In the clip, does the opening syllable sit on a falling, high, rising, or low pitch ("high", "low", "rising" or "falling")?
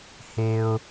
low